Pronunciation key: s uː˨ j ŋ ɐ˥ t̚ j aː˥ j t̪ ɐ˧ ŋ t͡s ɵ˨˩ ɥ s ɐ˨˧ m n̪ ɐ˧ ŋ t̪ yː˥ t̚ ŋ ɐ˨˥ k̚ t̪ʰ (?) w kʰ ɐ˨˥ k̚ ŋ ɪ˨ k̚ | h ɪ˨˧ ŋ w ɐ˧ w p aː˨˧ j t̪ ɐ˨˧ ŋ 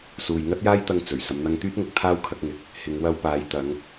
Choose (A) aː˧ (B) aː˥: B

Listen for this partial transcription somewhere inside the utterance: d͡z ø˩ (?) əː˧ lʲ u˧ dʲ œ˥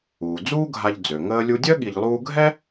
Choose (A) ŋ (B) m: A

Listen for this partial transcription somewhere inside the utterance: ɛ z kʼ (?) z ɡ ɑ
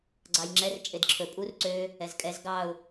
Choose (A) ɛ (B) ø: A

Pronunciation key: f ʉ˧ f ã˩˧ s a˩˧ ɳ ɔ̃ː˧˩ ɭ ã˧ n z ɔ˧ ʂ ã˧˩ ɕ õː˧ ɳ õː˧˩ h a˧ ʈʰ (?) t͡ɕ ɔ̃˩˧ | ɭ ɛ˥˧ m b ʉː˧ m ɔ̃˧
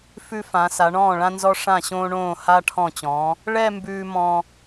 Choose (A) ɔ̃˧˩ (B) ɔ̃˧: A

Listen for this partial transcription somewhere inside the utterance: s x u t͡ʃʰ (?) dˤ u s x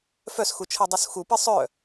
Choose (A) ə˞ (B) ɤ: B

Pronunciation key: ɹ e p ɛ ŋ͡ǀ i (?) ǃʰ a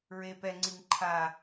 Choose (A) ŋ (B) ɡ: A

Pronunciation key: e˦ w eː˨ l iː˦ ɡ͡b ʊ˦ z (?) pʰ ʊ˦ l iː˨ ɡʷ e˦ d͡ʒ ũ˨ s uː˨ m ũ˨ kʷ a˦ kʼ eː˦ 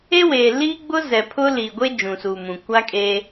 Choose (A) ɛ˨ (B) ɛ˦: A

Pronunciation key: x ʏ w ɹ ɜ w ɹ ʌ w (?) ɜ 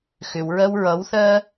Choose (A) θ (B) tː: A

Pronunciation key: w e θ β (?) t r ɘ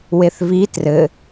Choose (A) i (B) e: A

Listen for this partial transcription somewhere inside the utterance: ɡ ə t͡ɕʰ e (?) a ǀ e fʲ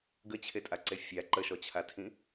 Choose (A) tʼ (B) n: A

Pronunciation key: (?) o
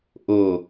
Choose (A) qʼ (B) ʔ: B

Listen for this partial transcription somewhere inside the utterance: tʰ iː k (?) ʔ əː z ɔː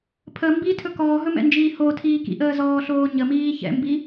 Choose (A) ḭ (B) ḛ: A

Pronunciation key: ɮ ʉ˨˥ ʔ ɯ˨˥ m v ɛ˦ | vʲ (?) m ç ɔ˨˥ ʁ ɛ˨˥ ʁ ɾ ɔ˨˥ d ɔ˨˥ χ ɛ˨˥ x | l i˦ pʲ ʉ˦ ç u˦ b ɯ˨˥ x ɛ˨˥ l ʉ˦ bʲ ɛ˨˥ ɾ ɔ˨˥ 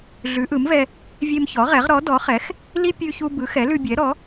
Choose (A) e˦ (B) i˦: A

